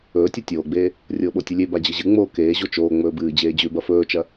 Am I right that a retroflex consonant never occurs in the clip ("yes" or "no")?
yes